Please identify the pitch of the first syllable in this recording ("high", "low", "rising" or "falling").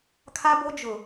high